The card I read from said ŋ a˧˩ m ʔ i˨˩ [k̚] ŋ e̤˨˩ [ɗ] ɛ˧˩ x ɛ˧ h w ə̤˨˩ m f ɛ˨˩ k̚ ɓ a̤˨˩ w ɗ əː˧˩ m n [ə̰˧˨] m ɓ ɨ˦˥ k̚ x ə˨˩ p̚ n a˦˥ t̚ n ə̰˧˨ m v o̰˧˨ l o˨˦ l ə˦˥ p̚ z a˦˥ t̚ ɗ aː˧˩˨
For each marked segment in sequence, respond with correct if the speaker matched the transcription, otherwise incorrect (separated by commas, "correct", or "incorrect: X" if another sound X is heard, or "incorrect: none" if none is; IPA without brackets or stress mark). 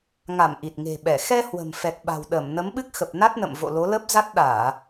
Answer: incorrect: t̚, incorrect: ɓ, incorrect: ə˨˦